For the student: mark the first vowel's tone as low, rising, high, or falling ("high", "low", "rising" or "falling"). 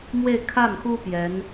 falling